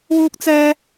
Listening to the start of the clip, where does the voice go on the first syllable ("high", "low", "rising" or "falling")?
high